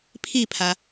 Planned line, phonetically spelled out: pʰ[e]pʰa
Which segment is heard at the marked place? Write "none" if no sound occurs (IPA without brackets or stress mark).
i